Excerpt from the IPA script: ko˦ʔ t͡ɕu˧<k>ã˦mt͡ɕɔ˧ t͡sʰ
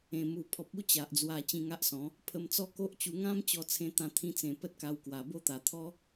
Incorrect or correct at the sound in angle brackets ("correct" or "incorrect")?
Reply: incorrect